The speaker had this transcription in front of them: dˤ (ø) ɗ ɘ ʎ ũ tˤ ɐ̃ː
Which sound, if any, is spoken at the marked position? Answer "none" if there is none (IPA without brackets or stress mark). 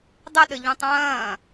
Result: ɘ